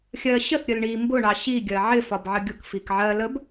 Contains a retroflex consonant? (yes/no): yes